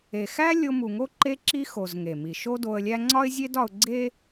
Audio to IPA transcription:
e˩ x æ˥ lʲ o˧ m u˩ ŋ o˥ ǃ e˧ ǁ i˧ x o˩ z ŋ e˩ m i˩ ʃ o˥ d o˧ ə̯ lʲ æ˥ ŋ͡ǀ ɒ˥ ɪ̯ zʲ e˥ d ɒ˧ ʊ̯ ɡ͡ǀ e˥

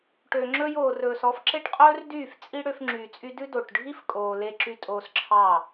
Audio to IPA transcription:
ʈ ø˨ ŋ͡ǁ ɵ˧ j oː˨ r ɵː˨ s ɔ˧ f ǁ e˦ ʈ qʼ ɵː˦ r d yː˦˨ f t͡sʼ i˦ ɽ ø˧ f ŋ͡ǁ yː˨ t͡sʼ y˧ d ʉ˦ d o˨ ʈ ɖʱ i˦ f kʼ oː˨ l e˧ ǁ y˧ tʼ oː˧ s ǁʰ ɑ˦˨

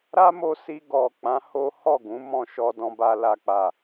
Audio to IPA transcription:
ɾ a˦ m o˧ s i˧ ɡ ɔ˨ k͡p ã˨˦ h o˦ h ɔ˦˨ ɡ ũ˨˦ m ɔ̃˧ ʃ ɔ˧ d ɔ̃˧ b a˨ l a˨ k͡p a˨

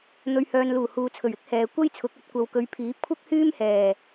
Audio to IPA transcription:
n̪ ɵ˨ ɥ h œː˨ n l uː˨˩ h uː˨ t͡sʰ ɵ˨˩ ɥ ɪ˥ k̚ h ɛː˨ kʷ ɐ˥ j t͡sʰ ʊ˨˥ k̚ ɐ˨˥ t̚ kʷ ɐ˨ w k ɵ˨˧ ɥ pʰ iː˨˥ p̚ kʷʰ ɐ˥ k̚ h yː˥ m h ɛː˨˩

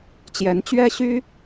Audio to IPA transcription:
t͡ɕ j ɛ˧˥ n t͡ɕ ɥ ɛ˥ ɕ y˥

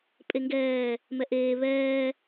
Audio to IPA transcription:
pʼ e ŋ ɡ ɛː | m ɛ ʔ eː β ɛː

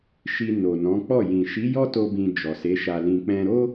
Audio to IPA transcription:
ʃ i˧ n o˨ n ɔ̃˨˦ k͡p ɔ˦˨ j ĩ˨ ʃ i˨˦ j ɔ˦ t o˧ b ĩ˨ d͡ʒ ɔ˨ s e˨˦ ʃ a˧ l ĩ˧ k͡p ɛ̃˧ ɾ o˦

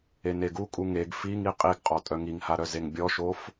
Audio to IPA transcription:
e n e ɡ u kʼ u ŋ e ɡ f i ŋ i qʼ i ɡ qʼ ɔ tʼ œ ŋ i ŋ h a ɾ œ z e ŋ bʲ ɔ ʃ o f

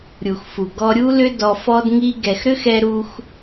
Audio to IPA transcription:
ɾʲ u˨ x f u˨ ɡ ɔ˧ ɾʲ u˦ l ʏ˦ d ɔ˧ f ɔ˦ d ŋ i˧ ɡ ɛ˨ x ɾ ʏ˦ x ɛ˧ ɾ u˧ x

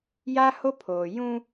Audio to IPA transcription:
j aː˦ h o˦ pʰ oː˨ j ũ˦

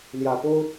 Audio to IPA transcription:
l j ä˨˩ p o˥ ʊ̯

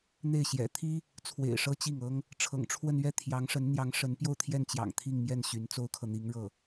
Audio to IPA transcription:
n̪ e˥˩ ɪ̯ ɕ j ɛ̰˨˩ t̪ʰ i˥ | t͡sʰ w ḛ˨˩ ɪ̯ ʂ ɤ˥ t͡ɕ i˥˩ ŋ ɤ˥ ŋ | ʈ͡ʂʰ ɤ̰˨˩ ŋ ʈ͡ʂʰ w ə˥˧ n ɥ ɛ˥˩ t̪ʰ j ɑ˧˥ ŋ ʂ ə˧˥ n n̪ j ɑ˧˥ ŋ ʂ ə˧˥ n p j o˥˧ ʊ̯ t̪ʰ j ɛ˥˩ n t͡ɕ j ɑ̰˨˩ ŋ t̪ʰ i˥˧ ŋ m j ɛ˥˩ n ɕ y˧˥ n t͡s o˥ ʊ̯ kʰ ɤ˨ n̪ i˧˥ ŋ ɻ ɤ˥˩

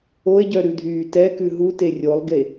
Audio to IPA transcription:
o e̯ ɟ œ ɾ ʉ dʱ yː t ɛ k ʉ ɦ u t e rʲ o lˠ ɡ e

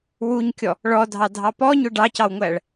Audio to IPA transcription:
w u ɲ kʲ ɔ | ɭ ɔ dʱ ɑ dʱ ɑ p ɔ ɲ ʊ ɖ ɑ c ɑ w ŋʷ æ ɭ

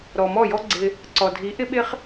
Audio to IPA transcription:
ɾ ɔ˨ m ɔ˦˨ j ɔ˦ ɡ͡ǀ ɪ˧ | ǀ ɔ˨ dʱ i˨˦ ʔ ɪ˦ ɓ ɪ˦ χ

